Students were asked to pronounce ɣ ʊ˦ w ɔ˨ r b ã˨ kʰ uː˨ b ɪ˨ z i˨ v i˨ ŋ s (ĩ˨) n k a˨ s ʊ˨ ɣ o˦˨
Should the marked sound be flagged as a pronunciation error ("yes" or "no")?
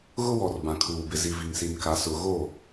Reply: yes